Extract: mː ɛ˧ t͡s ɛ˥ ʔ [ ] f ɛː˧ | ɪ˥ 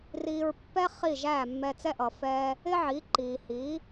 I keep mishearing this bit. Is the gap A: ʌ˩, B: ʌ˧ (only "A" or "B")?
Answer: A